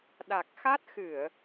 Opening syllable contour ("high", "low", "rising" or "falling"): low